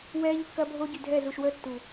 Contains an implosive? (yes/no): no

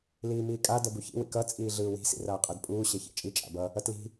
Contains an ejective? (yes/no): yes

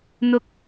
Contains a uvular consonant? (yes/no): no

